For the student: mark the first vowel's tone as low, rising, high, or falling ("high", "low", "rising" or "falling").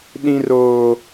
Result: high